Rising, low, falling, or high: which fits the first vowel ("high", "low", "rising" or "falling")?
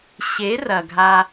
rising